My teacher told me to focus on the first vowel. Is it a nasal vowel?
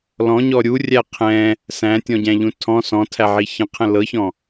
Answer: yes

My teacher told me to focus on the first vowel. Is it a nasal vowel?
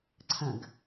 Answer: yes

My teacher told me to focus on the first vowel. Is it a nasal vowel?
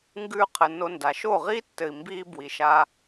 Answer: no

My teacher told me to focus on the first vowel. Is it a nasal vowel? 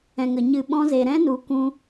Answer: yes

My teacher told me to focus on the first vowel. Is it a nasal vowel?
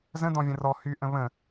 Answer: yes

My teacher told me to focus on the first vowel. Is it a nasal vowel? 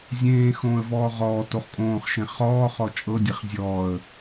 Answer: yes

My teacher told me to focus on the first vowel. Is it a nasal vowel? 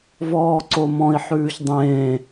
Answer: no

